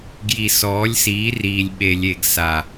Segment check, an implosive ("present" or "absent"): present